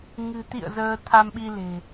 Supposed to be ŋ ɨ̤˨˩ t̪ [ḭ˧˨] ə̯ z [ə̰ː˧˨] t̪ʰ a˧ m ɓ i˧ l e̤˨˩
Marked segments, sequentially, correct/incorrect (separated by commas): correct, incorrect